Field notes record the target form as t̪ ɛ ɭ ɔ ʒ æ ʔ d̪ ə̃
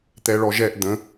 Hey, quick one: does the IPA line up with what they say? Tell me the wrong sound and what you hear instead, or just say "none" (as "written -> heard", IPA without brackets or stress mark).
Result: æ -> ɛ